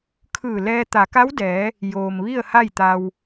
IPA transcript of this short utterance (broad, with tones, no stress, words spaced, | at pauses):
kʰɯː˧˩lɛː˧ t̪a˩˧ka˧˥wdɛː˩˧ | joː˩m ʋi˥˨ə̯ha˥˨jt̪a˧w